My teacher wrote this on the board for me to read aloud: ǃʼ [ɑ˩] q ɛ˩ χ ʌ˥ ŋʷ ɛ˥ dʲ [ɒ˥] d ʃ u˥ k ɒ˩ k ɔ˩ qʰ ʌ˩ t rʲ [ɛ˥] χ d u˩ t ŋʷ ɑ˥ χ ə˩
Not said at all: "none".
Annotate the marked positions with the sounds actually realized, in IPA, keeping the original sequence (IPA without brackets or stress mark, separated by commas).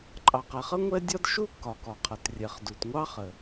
ɑ˩, ɒ˥, ɛ˩